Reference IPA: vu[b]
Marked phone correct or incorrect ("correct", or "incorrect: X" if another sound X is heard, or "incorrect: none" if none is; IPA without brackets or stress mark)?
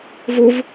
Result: incorrect: v